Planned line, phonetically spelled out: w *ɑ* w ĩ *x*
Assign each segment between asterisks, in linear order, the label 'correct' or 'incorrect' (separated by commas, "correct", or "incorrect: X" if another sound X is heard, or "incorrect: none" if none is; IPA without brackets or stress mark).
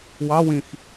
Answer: correct, correct